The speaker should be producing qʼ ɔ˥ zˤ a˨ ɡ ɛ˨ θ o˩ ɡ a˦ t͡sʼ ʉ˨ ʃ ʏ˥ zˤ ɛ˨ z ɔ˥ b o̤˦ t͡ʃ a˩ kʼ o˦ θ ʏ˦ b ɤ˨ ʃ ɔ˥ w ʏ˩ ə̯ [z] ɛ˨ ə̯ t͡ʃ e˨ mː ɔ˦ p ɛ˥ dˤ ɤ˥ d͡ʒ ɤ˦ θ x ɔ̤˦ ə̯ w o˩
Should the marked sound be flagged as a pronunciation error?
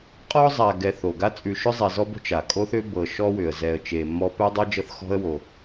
no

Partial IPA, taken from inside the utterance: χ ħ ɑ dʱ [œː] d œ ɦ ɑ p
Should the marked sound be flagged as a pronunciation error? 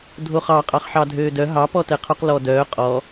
yes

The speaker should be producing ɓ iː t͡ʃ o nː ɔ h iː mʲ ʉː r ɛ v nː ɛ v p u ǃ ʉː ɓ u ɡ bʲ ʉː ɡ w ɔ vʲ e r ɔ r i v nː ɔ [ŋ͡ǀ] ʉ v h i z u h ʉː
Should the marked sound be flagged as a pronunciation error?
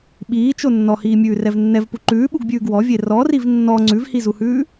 no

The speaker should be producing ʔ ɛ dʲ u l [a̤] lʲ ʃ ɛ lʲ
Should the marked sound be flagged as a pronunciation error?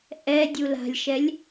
no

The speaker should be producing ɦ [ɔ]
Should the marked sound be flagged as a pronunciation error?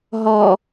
no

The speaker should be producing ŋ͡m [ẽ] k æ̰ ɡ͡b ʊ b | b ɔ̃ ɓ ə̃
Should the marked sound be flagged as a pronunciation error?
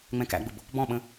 yes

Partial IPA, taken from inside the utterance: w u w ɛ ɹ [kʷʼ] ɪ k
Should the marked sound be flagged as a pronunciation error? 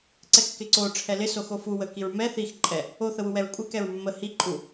no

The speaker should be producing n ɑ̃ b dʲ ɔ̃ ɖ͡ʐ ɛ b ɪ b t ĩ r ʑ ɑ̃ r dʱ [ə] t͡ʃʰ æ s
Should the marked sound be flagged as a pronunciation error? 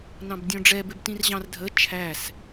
no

